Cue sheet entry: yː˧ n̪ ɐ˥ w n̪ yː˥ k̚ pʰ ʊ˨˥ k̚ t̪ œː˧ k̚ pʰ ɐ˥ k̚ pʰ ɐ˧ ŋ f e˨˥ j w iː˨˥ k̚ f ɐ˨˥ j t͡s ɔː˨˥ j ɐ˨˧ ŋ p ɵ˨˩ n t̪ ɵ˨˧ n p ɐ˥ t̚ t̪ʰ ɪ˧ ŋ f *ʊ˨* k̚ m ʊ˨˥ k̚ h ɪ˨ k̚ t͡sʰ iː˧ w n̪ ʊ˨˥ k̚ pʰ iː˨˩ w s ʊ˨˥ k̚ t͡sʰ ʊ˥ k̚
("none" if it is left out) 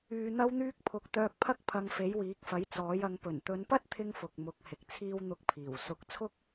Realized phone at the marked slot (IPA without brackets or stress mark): ʊ˨